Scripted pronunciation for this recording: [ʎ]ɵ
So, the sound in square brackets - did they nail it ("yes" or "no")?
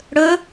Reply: no